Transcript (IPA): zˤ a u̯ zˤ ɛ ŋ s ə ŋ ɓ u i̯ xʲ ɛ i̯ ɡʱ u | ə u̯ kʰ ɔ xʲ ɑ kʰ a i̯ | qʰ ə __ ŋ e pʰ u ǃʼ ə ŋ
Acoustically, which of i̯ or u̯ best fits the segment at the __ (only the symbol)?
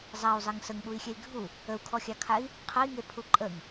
i̯